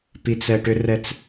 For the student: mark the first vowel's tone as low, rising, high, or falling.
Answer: low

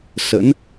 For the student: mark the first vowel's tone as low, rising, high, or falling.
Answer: rising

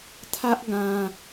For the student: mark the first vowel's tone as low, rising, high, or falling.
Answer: high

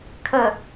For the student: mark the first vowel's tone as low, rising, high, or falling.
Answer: low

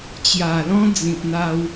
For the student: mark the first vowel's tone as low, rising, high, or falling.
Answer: low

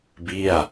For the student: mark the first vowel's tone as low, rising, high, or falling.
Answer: falling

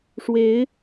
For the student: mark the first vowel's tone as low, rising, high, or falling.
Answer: rising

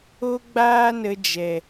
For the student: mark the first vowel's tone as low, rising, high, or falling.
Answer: high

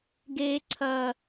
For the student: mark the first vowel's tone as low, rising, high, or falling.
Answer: high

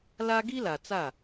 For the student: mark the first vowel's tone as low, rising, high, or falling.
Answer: high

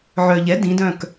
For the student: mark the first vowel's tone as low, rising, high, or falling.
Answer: low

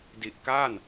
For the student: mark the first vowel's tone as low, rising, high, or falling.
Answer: low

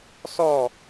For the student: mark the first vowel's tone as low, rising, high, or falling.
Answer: falling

